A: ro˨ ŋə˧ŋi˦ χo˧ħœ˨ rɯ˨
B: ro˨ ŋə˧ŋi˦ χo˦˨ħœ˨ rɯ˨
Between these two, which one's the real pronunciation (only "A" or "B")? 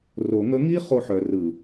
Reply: A